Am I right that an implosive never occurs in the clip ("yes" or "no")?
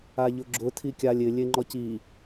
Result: yes